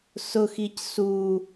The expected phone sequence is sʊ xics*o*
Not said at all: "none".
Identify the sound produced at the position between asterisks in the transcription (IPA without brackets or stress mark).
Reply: u